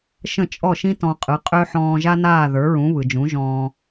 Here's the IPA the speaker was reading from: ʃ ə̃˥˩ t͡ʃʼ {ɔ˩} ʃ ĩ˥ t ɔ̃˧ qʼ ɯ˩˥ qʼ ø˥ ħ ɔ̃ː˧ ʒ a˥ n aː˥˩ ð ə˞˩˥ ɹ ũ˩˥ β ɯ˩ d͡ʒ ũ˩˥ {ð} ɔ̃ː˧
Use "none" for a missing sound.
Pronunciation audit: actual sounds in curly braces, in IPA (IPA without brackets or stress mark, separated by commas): ɔ˥˩, ʒ